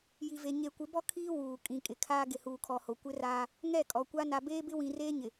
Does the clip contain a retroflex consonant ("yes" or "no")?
no